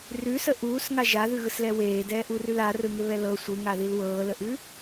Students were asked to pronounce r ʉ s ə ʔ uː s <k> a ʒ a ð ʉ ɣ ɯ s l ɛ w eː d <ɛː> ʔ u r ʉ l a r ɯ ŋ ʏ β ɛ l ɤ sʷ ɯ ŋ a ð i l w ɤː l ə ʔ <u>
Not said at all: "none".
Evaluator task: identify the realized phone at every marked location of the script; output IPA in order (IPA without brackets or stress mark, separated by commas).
ŋ, ɛː, ʉ